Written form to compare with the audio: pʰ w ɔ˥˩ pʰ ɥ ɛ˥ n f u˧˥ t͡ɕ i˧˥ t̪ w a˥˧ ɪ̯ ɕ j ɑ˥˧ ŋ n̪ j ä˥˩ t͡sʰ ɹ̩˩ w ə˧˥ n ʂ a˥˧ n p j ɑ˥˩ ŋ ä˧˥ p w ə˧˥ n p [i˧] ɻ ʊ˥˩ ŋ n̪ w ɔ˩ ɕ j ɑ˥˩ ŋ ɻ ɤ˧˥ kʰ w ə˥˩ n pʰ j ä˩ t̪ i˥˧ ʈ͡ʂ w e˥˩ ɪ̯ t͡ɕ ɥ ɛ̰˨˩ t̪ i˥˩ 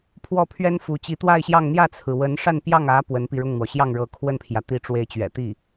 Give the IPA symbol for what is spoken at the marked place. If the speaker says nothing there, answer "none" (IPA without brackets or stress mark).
i˧